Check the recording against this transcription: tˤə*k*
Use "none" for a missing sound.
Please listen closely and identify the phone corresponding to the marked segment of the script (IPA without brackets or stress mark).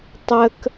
k